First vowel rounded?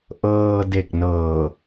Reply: no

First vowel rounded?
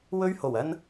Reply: yes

